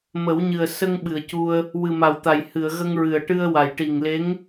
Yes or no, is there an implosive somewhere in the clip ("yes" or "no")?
yes